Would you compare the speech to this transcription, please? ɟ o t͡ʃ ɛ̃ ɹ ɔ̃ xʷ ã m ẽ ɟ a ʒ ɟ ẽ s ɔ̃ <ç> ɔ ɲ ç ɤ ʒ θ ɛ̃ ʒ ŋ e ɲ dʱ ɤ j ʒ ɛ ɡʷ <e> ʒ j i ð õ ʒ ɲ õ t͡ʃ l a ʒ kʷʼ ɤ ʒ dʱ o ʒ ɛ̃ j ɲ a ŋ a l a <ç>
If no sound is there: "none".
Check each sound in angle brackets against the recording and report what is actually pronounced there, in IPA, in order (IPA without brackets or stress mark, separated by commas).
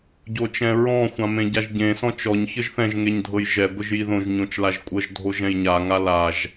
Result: t͡ʃ, ɘ, ʒ